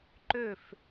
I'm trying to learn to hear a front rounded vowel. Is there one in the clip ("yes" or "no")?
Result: yes